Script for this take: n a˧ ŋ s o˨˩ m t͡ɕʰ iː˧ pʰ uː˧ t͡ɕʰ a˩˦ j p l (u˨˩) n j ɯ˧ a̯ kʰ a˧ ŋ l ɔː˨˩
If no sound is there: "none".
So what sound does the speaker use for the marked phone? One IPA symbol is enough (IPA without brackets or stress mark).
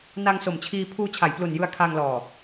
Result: u˨˩